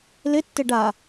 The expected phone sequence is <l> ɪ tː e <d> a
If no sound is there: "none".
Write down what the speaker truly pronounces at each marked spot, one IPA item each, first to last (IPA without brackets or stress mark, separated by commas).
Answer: l, ɖ